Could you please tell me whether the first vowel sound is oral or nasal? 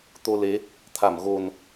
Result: oral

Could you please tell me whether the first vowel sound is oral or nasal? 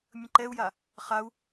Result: nasal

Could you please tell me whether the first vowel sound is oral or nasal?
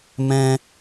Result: nasal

